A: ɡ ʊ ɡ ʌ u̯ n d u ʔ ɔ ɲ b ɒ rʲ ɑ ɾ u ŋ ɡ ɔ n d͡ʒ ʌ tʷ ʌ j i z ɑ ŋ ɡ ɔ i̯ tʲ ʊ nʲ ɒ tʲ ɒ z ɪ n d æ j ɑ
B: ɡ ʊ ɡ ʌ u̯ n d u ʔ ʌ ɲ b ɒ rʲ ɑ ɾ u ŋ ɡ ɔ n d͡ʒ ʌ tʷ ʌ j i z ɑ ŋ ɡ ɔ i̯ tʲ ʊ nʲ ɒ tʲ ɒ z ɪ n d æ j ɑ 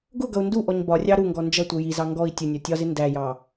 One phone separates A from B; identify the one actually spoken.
A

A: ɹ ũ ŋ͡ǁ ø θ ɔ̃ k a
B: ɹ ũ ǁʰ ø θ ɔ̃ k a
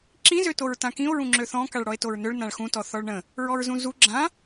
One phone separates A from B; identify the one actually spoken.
A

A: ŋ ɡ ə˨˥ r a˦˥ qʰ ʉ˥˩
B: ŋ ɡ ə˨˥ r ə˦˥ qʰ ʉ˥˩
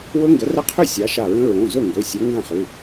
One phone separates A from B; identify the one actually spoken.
B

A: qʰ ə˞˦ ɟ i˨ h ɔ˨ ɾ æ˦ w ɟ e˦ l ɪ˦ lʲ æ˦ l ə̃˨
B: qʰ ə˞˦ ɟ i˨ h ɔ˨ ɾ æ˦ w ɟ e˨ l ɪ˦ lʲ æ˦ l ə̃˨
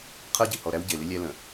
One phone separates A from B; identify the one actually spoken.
B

